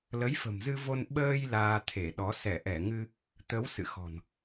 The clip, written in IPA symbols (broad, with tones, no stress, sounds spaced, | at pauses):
l ə˨˦ j f ə̤˨˩ m z ɨ˧ v o˧ n ɓ əː˧ j l aː˧ t̪ʰ e˧˩ ɗ ɔ˨˦ s ɛ˧˩ ʔ ɛ˧˩ ŋ ɨ˧ | t̪ ə˨˦ w s ɨ̰˧˨ x ɔ̤˨˩ n